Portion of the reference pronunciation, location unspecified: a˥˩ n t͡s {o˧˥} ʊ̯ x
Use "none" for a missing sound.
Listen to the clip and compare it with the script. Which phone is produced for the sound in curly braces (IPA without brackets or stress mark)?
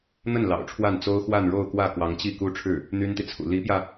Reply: o˥